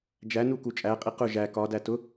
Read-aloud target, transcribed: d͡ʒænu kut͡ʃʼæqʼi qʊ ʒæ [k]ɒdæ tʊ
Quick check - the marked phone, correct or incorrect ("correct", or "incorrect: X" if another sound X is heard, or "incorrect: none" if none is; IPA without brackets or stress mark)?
correct